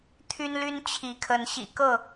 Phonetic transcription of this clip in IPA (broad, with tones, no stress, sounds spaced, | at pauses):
t̪ʰ y˦ n l y˦ n t͡ɕʰ i˨˦ kʰ ə˨˦ n ɕ ḭ˨˩ k ɤ˥˨